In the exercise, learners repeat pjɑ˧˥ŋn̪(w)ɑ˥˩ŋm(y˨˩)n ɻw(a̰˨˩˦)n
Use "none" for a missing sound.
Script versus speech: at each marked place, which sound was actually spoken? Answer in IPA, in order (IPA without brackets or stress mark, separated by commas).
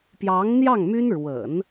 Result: j, y˥, ə̰˨˩˦